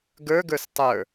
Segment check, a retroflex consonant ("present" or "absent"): absent